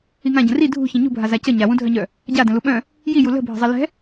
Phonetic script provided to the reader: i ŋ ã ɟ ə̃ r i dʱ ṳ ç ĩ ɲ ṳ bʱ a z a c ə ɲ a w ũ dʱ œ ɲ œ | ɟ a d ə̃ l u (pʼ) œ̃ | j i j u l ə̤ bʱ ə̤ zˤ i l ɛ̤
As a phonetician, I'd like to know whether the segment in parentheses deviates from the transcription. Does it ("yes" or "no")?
yes